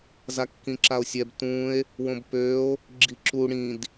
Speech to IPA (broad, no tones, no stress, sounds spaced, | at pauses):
z a kː ĩ ǁ a o̯ sʲ ɛ b t ũ e̯ | w õ b p ø o̯ | ɡ͡ǁ i ǁ u ɽ ĩ d